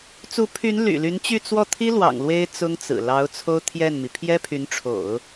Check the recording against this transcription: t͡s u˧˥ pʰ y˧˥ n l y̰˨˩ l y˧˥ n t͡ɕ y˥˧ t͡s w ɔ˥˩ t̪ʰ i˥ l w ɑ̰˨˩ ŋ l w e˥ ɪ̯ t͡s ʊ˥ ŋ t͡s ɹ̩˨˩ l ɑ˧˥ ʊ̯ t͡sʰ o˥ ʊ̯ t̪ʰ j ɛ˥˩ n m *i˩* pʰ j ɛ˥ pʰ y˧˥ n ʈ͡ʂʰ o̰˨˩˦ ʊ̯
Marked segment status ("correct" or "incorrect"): correct